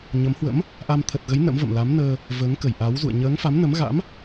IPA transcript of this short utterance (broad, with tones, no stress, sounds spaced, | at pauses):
ɲ ə˨˦ m h w ə̰˧˥ m | ʔ a˧ m t̪ʰ ə˨˩ t̚ ɣ ə˨˦ j n ə̰˧˥ m v ə̰˧˨ m l a˨˦ m n əː˧ | v əː˨˦ ŋ k ə˧˩ j ʔ a˨˦ w z ṵ˧˨ ə̯ ɲ əː˨˦ ŋ f a˨˦ m n ə˨˦ m ɣ a̰˧˥ m